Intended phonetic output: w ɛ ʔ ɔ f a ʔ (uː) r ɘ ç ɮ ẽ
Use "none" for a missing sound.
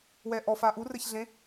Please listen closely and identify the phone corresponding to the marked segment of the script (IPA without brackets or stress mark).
u